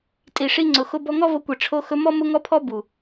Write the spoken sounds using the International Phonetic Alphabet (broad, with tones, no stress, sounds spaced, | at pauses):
tʼ i˨ ʂ i˧ ŋ͡ǀ ʊ˨ x ʊ˧ b ɔ˧ ŋ ɔ˦ v o˧ kʷ e˨ ʈ͡ʂʰ o˧ x ɵ˧ m ɔ˦ m ʊ˦ ŋ ɔ˦ pʰ ɔ˦ b u˨